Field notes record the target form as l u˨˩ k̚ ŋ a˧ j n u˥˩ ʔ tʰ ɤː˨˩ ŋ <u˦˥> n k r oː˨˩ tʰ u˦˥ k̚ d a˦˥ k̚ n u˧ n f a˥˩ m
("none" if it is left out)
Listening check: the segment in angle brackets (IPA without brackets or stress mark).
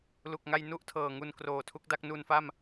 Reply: u˧